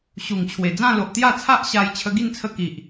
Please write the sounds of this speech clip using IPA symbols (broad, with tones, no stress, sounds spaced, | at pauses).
ɕ u˨˩ ŋ t͡ɕʰ w e˨˩ d͡z ã˥˧ l o˨ ʔ t̪ j a˥˧ t͡sʰ a˦ ʔ ɕ a˧ j t͡ɕʰ ə˧ ɡ i˥˧ n t͡sʰ ə˧ k i˨ ʔ